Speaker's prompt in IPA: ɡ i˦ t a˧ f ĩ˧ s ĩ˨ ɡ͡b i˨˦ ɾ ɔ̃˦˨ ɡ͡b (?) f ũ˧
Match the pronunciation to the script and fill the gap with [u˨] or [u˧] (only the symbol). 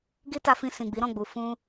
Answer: u˨